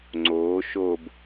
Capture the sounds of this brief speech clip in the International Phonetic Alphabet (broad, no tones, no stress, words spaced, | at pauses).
ŋ͡ǀoː ʃob